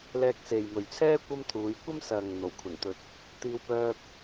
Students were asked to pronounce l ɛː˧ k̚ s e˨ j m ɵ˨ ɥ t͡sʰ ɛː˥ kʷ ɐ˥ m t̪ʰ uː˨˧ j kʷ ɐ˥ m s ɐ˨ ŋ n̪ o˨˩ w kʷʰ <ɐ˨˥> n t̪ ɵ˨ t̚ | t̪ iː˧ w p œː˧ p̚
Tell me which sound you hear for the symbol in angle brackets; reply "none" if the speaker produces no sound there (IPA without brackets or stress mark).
ɐ˨˩